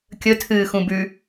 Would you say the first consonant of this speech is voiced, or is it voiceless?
voiceless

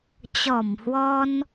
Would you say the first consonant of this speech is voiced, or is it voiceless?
voiceless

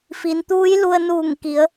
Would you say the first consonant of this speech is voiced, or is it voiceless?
voiceless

